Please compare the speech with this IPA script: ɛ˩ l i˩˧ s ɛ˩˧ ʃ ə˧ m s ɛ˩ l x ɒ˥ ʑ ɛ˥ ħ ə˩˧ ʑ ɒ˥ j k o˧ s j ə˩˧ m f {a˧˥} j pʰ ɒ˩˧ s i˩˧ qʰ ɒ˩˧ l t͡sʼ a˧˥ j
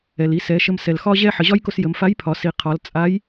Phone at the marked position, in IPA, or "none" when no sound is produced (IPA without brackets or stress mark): a˧˥